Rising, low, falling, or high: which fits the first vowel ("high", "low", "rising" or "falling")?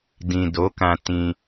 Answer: low